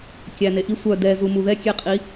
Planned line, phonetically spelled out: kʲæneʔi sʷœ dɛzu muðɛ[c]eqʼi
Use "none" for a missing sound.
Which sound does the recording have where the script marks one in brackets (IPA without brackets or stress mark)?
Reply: kʲ